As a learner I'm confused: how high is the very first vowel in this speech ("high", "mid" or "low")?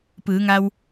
high